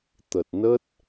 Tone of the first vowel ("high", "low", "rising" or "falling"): low